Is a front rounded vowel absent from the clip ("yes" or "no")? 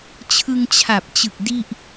yes